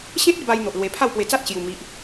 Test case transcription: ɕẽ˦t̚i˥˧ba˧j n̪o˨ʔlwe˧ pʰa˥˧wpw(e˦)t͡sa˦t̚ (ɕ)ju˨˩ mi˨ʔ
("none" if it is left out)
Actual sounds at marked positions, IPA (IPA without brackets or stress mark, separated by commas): e˧, ɕ